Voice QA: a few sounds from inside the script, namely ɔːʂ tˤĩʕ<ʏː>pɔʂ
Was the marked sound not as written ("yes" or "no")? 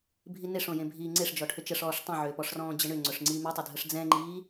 no